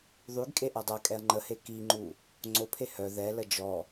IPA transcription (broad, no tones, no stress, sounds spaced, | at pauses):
ðˤ y ɡ kʼ e ʔ a dˤ a kʼ ɛ ɐ̯ ŋ͡ǃ ə h e k i ŋ͡ǃ u | ŋ͡ǀ o pʰ e h œ ð ɛ l ə d͡ʒ ɔ